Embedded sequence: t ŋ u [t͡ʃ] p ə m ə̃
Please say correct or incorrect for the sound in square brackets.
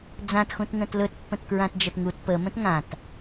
incorrect: t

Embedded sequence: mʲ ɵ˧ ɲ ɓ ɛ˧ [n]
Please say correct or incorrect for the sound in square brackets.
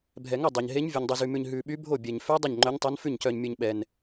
correct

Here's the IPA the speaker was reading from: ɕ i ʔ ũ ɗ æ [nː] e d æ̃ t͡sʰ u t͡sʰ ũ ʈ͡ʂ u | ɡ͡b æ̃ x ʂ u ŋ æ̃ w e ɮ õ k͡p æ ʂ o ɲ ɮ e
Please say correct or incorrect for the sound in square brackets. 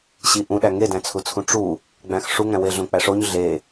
incorrect: ŋ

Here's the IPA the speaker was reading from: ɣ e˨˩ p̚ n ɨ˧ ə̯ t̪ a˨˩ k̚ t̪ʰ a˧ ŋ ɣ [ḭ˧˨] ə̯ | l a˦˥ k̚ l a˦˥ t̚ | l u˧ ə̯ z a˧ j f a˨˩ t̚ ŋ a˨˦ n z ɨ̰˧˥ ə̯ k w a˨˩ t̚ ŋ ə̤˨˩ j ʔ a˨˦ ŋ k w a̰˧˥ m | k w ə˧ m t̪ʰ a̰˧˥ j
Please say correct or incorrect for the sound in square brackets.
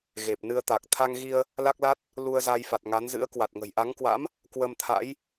incorrect: i˧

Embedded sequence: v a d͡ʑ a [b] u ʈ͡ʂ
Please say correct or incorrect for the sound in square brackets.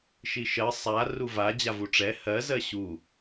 incorrect: v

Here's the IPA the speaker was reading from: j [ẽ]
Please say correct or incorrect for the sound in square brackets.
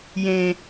correct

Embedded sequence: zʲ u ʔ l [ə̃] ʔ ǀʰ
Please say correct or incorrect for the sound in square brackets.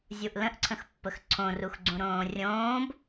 correct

